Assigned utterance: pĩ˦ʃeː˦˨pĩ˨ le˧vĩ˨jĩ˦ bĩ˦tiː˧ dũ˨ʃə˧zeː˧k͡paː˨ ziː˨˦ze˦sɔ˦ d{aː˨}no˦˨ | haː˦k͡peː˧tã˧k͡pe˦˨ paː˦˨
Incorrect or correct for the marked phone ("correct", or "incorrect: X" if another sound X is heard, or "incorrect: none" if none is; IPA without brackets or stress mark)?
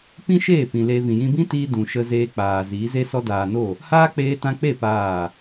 correct